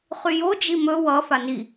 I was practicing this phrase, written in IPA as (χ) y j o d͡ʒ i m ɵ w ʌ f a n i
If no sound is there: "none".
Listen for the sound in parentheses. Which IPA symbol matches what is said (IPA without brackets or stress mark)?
χ